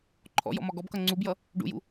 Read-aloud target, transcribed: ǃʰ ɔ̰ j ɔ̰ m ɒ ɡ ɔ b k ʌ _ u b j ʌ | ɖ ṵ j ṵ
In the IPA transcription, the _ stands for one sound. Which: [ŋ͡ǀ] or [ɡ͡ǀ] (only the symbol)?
ŋ͡ǀ